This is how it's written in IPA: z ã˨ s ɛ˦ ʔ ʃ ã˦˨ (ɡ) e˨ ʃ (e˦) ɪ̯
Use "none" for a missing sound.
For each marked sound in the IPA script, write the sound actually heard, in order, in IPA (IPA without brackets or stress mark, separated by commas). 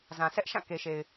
k, e˨